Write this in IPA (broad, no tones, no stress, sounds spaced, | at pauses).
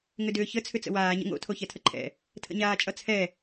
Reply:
ŋ ʏ d ʏː ç ə t͡sʰ ʏ t͡s ə̰ w aː ɲ ə̰ ŋ o̰ tʰ o ç ɛ tʰ ə ǃʰ ɛ̰ | tʰ ə̰ ɲ aː t͡ʃʼ ʌ t͡sʰ ɛ